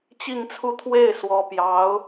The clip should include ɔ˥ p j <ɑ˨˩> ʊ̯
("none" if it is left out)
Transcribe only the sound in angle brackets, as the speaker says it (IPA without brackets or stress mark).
ɑ˧˥